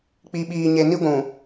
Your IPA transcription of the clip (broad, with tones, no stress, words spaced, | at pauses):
k͡pi˨ɓiː˨ɲe˨ ni˦ ɡʷũ˨